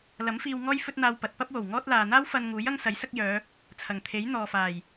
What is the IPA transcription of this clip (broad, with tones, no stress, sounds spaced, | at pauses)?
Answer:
l ɐ˨˥ m f iː˧ w ŋ ɔː˥ j f ɵ˥ t̚ n̪ aː˧ w p ɐ˨˥ t̚ p ɐ˥ p̚ w o˨˩ w ŋ ɔː˥ t̚ l aː˨ n̪ aː˥ w f ɐ˧ n ŋ uː˨˥ j ɐ˥ ŋ s ɐ˨˥ j s ɐ˥ k̚ j œː˨˧ | t͡sʰ ɐ˨˩ ŋ t̪ʰ e˨˥ j n̪ ɔː˨ f aː˨˩ j